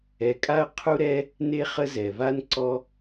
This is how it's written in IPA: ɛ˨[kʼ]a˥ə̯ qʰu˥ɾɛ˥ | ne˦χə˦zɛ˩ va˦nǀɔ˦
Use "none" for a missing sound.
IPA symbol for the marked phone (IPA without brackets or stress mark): kʼ